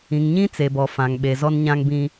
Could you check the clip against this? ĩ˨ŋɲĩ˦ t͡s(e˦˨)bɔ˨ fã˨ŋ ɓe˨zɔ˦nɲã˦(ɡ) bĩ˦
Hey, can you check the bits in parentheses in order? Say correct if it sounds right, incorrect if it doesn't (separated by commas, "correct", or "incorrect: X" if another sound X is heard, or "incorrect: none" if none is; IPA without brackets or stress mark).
incorrect: e˨, incorrect: ŋ